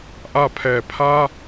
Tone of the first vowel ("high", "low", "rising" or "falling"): falling